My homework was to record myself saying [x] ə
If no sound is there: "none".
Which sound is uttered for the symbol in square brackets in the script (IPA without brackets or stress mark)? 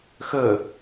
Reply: x